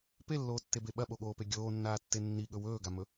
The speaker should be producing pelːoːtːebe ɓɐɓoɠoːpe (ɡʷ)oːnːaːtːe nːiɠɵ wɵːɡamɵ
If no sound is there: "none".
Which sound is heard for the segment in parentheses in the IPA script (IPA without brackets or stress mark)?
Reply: ɡʲ